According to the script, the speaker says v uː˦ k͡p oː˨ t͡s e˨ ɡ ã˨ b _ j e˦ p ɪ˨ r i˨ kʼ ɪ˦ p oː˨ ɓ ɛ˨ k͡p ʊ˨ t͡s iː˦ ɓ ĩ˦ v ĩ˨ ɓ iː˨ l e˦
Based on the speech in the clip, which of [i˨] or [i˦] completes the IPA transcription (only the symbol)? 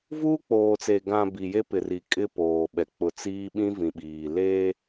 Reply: i˨